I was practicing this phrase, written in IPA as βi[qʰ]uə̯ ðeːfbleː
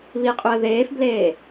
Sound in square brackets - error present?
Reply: yes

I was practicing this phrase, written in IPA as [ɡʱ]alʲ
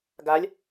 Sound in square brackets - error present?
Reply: yes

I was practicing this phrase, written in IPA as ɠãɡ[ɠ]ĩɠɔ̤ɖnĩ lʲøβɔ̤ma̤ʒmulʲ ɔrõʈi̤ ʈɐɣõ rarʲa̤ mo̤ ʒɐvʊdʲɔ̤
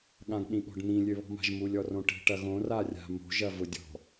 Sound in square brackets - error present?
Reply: yes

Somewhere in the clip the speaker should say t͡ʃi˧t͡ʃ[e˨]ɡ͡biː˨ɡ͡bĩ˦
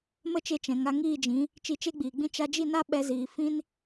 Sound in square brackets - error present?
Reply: yes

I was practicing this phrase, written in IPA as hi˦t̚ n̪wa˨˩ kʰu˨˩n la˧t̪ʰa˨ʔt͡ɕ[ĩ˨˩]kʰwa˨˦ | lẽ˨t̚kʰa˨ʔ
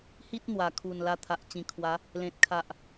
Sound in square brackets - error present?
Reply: no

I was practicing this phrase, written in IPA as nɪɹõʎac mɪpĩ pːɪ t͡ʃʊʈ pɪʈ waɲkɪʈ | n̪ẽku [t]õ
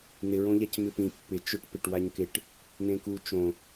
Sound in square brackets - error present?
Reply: yes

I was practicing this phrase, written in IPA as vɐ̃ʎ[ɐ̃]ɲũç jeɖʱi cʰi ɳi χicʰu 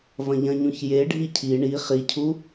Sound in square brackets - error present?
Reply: no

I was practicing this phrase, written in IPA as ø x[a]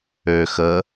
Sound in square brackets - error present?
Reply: yes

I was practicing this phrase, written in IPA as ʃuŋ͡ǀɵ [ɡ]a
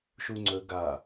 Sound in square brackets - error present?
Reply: no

